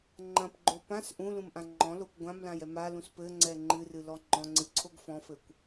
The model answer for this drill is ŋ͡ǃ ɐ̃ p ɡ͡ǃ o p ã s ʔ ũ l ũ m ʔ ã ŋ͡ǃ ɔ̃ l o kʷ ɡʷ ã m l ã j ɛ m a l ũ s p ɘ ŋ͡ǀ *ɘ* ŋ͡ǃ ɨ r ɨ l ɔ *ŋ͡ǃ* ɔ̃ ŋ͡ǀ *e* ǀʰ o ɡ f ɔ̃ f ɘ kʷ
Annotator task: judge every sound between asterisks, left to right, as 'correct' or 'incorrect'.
incorrect, correct, incorrect

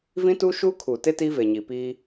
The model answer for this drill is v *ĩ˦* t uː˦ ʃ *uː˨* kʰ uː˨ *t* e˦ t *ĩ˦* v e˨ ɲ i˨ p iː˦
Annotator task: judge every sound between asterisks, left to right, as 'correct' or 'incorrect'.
correct, incorrect, correct, incorrect

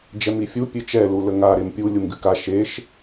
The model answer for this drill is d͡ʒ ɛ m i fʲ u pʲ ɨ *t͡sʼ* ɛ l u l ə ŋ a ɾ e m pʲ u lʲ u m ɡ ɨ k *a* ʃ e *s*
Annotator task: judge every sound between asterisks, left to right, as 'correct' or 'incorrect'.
incorrect, correct, incorrect

